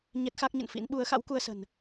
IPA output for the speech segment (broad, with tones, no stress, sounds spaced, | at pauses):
ɲ ɛ˦˥ t̚ x a˦˥ k̚ ɲ ə̰˧˨ n f ḭ˧˥ n ɓ u˨˦ ə̯ x a̰˧˥ w k u˧ ə̯ s ə̤˨˩ n